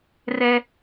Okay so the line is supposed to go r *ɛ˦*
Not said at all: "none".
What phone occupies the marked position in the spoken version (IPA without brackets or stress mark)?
ɛ˦